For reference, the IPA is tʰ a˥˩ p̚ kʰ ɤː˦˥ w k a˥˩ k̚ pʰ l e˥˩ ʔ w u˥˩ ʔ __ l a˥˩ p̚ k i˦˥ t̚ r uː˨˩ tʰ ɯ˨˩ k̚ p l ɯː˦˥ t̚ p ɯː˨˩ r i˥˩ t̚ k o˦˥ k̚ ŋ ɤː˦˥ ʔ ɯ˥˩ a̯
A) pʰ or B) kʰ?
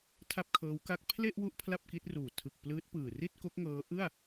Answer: A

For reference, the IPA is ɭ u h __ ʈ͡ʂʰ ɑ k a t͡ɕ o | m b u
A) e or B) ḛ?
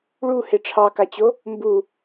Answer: A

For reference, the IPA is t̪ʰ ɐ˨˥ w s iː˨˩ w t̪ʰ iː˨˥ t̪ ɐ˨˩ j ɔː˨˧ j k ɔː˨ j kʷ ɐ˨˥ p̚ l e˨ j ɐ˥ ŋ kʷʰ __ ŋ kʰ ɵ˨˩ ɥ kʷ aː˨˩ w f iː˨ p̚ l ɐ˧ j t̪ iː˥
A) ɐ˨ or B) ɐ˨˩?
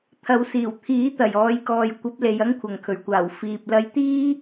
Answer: A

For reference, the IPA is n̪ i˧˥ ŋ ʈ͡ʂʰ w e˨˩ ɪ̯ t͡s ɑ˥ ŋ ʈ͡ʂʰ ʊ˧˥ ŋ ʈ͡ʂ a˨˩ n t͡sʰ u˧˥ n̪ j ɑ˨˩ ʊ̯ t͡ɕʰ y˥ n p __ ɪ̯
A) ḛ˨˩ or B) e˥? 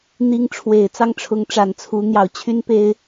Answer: B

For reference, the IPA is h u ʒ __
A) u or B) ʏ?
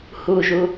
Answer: A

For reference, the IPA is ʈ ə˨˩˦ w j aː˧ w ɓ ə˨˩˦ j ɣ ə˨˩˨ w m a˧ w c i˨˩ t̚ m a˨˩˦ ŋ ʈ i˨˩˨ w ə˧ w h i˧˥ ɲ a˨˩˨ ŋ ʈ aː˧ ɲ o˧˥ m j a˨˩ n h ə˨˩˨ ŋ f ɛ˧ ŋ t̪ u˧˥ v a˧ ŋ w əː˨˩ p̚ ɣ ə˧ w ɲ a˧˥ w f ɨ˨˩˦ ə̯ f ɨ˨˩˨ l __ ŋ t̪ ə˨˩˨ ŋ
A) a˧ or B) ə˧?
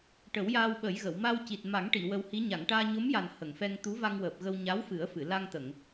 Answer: A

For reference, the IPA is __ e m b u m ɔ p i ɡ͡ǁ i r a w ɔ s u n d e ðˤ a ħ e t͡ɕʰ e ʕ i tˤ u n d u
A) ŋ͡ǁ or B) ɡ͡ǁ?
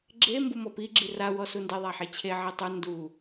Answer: B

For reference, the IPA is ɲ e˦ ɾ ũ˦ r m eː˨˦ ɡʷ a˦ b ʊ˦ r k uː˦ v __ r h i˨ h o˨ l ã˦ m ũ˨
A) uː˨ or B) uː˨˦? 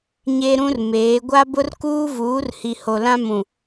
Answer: B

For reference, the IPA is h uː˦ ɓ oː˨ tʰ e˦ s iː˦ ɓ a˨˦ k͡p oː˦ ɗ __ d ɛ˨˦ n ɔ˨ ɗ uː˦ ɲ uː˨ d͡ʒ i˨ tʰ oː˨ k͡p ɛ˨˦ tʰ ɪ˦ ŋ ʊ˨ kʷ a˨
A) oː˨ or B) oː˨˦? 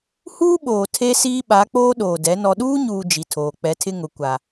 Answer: A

